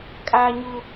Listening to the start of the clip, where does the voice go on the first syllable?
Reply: high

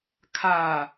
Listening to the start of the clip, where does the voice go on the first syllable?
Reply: low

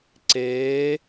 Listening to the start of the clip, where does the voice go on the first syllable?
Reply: rising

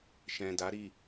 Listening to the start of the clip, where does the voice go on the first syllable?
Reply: low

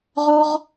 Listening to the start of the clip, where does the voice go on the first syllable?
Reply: high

